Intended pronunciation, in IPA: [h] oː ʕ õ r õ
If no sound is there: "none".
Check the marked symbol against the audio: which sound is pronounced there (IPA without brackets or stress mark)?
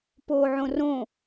p